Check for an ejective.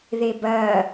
absent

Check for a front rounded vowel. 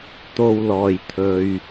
absent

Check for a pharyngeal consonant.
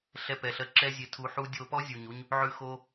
present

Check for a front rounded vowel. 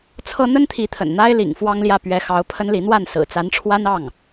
absent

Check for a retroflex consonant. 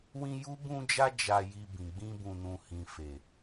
absent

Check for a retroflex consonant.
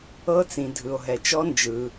absent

